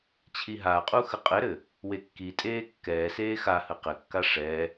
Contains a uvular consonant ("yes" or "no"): yes